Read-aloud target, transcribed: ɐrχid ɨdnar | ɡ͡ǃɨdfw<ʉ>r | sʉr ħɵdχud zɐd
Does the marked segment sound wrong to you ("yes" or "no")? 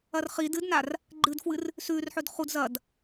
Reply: yes